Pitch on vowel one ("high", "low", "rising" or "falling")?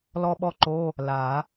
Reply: high